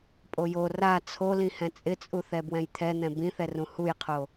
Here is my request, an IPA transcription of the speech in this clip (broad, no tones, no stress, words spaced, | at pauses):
pʼojo ra t͡sʰolĩhɛ̃ t͡sʼɪt͡sʼuθɛ bwɛ̃jt̪ʰɛn̪ɛ̃ bĩθɛrũ hujqʰo